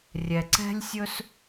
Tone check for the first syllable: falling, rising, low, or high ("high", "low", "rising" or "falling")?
low